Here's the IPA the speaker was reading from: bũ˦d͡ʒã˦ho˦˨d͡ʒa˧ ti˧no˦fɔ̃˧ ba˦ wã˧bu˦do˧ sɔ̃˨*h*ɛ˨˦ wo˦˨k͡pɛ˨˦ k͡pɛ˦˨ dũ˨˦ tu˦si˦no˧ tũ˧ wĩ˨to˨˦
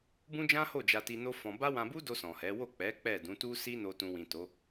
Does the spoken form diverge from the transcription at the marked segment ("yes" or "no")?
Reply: no